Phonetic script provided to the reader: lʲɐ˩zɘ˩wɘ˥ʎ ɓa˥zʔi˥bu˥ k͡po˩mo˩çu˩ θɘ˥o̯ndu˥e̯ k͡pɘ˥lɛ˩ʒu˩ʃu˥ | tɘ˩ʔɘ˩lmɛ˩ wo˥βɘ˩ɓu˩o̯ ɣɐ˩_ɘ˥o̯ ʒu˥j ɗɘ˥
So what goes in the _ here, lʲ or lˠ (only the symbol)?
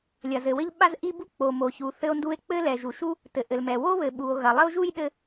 lˠ